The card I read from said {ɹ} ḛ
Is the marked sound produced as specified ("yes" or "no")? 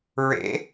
yes